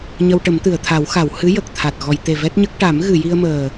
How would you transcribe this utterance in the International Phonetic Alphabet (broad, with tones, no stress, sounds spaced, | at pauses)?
ɲ ə˧ w ʈ ə˨˩˦ m t̪ ɨ˨˩˨ ə̯ t̪ʰ a˨˩˦ w x a˨˩˨ w h ɨ˧˥ j ə˨˩ k̚ t̪ʰ a˨˩ t̚ ɣ ɔ˨˩˨ j t̪ e˨˩ v ɛ˦˥ t̚ ɲ ə˦˥ k̚ ʈ a˨˩˦ m ɣ ɨ˨˩˨ j i˧ ə̯ m əː˨˩